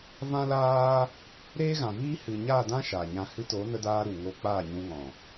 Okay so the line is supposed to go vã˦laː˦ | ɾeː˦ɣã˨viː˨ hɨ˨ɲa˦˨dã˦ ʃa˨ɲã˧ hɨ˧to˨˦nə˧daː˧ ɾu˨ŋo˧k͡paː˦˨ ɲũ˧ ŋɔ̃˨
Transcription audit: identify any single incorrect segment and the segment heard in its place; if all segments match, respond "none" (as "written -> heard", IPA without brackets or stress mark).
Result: iː˨ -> iː˦